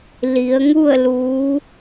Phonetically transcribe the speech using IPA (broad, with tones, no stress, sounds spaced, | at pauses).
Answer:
l i˩˧ ə̯ ŋ u˥˨ ə̯ l uː˧˥